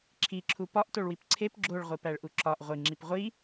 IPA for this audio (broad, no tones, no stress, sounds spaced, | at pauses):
ǁʰ i ǁʰ u p ɒ ʔ t o ɭ w i p ǀʰ e p ɡ͡ǁ o ɭ ʁʷ i p æ ɭ ʔ u ǁ ɒ ʔ ʁʷ i ŋ͡ǁ i p ʁʷ i